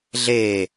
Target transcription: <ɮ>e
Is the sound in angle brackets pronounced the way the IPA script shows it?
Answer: yes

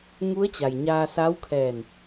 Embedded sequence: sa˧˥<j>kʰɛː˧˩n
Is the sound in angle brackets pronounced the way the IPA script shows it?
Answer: no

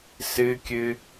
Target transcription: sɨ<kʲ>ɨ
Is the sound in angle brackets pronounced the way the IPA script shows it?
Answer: yes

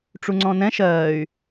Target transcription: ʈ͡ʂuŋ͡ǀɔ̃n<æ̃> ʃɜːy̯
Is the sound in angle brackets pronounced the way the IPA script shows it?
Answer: no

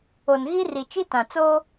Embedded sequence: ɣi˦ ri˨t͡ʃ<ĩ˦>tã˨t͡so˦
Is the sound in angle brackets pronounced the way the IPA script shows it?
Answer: no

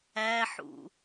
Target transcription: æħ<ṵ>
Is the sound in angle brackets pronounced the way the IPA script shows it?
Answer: yes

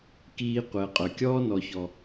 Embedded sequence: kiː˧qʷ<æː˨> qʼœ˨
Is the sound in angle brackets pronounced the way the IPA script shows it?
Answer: no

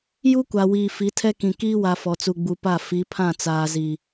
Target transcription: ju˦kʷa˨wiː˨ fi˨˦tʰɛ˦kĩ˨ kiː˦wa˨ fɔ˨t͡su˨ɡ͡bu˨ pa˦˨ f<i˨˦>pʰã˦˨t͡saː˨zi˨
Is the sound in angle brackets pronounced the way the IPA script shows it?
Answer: yes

